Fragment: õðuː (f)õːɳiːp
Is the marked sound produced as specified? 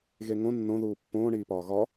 no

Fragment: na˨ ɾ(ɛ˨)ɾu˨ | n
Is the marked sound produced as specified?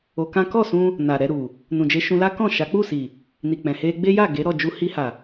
no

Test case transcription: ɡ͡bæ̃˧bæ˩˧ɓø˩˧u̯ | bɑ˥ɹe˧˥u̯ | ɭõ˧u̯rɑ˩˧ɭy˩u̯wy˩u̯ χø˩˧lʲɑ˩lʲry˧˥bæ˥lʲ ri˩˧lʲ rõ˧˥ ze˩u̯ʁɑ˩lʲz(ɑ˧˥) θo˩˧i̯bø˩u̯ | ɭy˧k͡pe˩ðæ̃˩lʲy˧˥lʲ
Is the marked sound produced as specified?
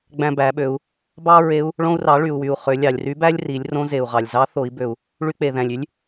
yes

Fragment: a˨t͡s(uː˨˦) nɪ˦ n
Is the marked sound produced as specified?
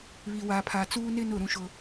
no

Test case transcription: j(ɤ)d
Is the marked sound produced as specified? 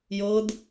yes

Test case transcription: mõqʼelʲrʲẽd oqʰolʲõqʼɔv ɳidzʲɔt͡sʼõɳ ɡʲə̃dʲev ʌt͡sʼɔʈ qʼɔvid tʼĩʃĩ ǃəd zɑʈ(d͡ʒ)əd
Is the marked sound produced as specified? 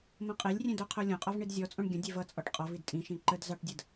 no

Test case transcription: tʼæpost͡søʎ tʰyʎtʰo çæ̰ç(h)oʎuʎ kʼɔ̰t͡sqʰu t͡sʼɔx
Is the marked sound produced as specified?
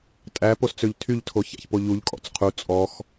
no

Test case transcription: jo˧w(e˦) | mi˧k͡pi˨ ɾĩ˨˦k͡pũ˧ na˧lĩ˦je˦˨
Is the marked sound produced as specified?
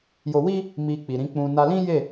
no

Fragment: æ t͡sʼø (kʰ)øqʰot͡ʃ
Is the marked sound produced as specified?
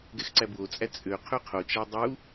no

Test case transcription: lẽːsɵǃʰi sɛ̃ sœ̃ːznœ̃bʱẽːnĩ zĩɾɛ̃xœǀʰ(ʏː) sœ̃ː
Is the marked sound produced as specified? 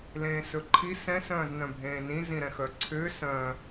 yes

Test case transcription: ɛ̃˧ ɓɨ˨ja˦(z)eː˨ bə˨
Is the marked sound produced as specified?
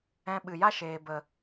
no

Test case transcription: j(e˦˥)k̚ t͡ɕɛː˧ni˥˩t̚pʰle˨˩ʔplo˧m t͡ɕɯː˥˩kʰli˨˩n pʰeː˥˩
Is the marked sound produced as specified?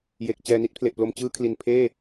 no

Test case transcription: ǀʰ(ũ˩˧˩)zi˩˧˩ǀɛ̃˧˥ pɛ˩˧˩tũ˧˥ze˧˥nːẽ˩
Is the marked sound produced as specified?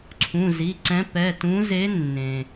yes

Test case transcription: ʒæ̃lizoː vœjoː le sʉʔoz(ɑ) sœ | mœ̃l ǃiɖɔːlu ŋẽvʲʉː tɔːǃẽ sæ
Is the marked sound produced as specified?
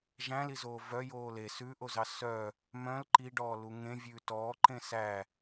yes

